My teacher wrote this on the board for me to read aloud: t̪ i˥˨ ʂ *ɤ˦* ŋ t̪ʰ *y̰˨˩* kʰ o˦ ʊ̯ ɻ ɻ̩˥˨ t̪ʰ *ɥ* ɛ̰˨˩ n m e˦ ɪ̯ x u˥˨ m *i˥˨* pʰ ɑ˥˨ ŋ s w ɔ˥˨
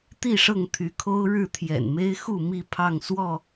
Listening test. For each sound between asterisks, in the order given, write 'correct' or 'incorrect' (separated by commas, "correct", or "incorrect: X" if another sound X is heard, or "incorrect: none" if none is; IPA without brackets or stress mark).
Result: incorrect: ɤ˥˨, incorrect: y˨˦, incorrect: j, correct